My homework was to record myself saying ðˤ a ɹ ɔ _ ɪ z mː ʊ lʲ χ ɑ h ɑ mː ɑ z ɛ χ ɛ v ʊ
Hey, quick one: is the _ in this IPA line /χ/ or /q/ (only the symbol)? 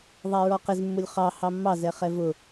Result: q